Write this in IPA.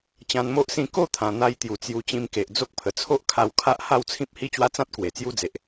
t͡ɕ ã˧ n m o˦ ʔ s ĩ˥˧ k o˥˧ t̪ʰ ã˨˩ n̪ a˧ j t̪ j u˨˩ t͡s j u˧ t͡ɕ ĩ˧ m k e˨ ʔ d͡z o˦ k̚ pʰ ə˨˩ t͡sʰ o˦ ʔ kʰ a˧ w kʰ a˦ ʔ h a˥˧ w t͡sʰ ĩ˦ p̚ h i˦ t͡ɕ w a˦ t͡s ã˦ t̚ k w e˨˩ t͡s j u˦ d͡z e˨ ʔ

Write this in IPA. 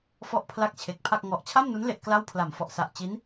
f ɔ˥˩ ʔ pʰ l a˥˩ k̚ t͡ɕʰ e˨˩ k̚ pʰ a˥˩ k̚ ŋ ɔ˨˩ ʔ t͡ɕʰ a˥˩ m n u˦˥ n l e˥˩ ʔ k l a˥˩ w pʰ l a˨˩ m f ɔ˨˩ ʔ s a˨˩ ʔ t͡ɕ i˦˥ n

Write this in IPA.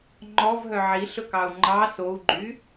ŋ͡ǃ ɔ v ɦ œ ʕ i ɬ ɵ k ɑ u̯ ŋ͡ǃ ɑ s o u̯ ɡ͡ǃ y

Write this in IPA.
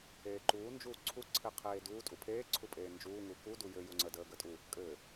eː ǃ uː n d͡ʒ uː ǀʰ u ǀʰ e qʰ eː d uː tʼ u pʰ eː ǀʰ u pʼ eː n d͡ʒ uː ŋ u k u d u j ɘ j u ŋ͡ǀ ə d əː ɡ ə tʼ u | kʼ ɘː

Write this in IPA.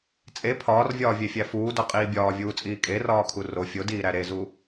t͡sʼ e pʰ ɒː r vʲ ɒː vʲ e fʲ æ f uː d ɒ qʼ iː bʲ ɒː vʲ uː t͡sʼ iː kʼ e r ɒː kʰ u r o fʲ o d iː ɾ æ ɾ e z u

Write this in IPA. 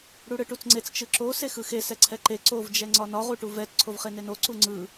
ɽ u ɽ ɯ ʈ u t͡s ŋ͡ǀ e t͡s t͡ʃ ɯ ǁ o s e x ɯ x e s ɛ ǀʰ ɛ ǃ e ǀ o v d͡ʒ ɛ ŋ͡ǀ ɒ n ɒ ʁ u ʈ u v ɛ t ǀʰ o v χ e n e n o ǀ u ŋ͡ǀ ɯ

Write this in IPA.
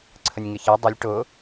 ǀʰ ə nʲ ŋ ɪ ç ɛ dˤ ɪ lʲ ʈ ʊ

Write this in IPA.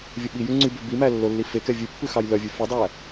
vʲ ɵ ɓ i j ʉ ŋ͡ǀ y b ø b i m æ lː o lː i f e k ɛ vʲ ʉ pː ʉ x ɑ j l œ vʲ ʉ f ʉ dˤ æ

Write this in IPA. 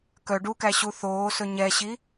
k œ ɖ u k æ ɕ u θ oː s ɵ ɲ ɛ ɕ i

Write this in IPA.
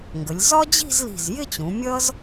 ŋ ɡ ə˩˧ lʲ z ɒ˥ d͡ʑ i̤˥˧ z l i̤˧˩ z j ɪ˥˧ t͡ɕ ũ˩˧ mʲ ʌ˥ z

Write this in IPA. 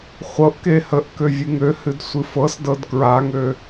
χʷ ɤ ʔ k e h ə ʔ k ø vʲ ɨ ŋ ø h ɨ d sʷ ɨ f ɤ s d ɤ d k ɹ a ŋ ø

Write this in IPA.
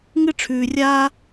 ŋ ɨ˥ ʈ͡ʂʰ ʉː˧ rʲ aː˥

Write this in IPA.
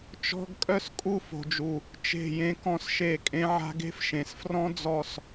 t͡ʃ ɔ̤˧ ɡ kʼ œ˦ s kʼ u˦˨ f o̤˨ d͡ʒ u˨ | t͡ʃ e̤˦˨ j ẽ˦ k ɔ̃˦ s ʃ e˦˨ kʼ ẽ˧ ʕ a̤˧ ɡ e̤˦ f ʃ ẽ˨ s f r ɔ̃˦ d͡z ɔ˦˨ s

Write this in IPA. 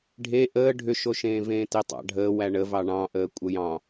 ɖʱ e ʔ əː ɖʱ ʏ ʃ o ʃ ẽː v ẽː t e tˤ ɑ̰ ɖʱ əː w æ ɳ ə v ɑ ɳ ɑ̃ ʔ əː kʷʼ ə j ɑ̃

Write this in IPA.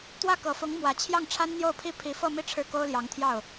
t̪ w ä˥˩ k ɤ˨˩ f ʊ˧˥ ŋ m w ä˨˩ t͡ɕʰ j ɑ˥˩ ŋ ʈ͡ʂʰ a˥ n n̪ j o˥˩ ʊ̯ pʰ i˥ pʰ i˧˥ f ɤ˥˧ m i˥˧ ʈ͡ʂʰ ɻ̩˥˩ k o˥ ʊ̯ l j ɑ˧˥ ŋ t̪ʰ j ɑ˥˩ ʊ̯

